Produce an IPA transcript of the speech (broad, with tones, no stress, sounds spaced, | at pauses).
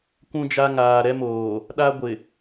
kʷ ũ˦ d͡ʒ a˦ ŋ aː˨ ɾ ɛ˦ m oː˨ | ɗ a˦ ɡʷ ɪ˨